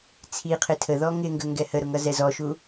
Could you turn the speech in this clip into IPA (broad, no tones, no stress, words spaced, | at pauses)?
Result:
t͡sʰiqʰɪ tʰəðɔ ŋɪŋɡə ŋɡɛhəɾʊ ŋʌzɛzɔʃu